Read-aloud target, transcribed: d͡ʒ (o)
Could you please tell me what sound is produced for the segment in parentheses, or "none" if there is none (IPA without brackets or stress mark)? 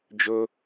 o